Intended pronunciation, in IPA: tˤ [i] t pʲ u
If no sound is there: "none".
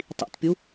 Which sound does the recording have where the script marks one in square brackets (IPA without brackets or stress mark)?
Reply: ḭ